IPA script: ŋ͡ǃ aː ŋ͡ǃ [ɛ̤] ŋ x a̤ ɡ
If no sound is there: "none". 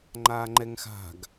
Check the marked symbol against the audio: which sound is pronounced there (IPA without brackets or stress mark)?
ɛ